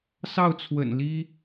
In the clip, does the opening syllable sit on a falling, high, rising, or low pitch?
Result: falling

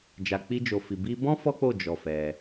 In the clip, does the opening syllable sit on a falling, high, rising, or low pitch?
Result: low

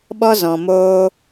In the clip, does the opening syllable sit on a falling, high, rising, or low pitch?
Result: high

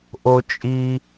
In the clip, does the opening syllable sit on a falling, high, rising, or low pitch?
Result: high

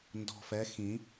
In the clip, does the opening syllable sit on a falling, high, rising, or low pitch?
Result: low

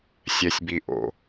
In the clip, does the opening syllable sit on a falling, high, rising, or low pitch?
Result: low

